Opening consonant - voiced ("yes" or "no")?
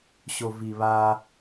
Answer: no